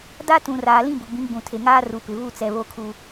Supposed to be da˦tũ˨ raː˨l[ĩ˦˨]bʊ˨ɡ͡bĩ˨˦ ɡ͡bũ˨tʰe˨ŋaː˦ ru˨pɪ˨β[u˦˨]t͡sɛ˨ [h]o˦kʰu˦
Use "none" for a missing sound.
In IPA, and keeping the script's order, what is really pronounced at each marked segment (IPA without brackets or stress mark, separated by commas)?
ĩ˦˨, u˦˨, β